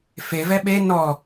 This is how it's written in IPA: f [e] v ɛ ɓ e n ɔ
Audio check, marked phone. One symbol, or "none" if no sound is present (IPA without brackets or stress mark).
e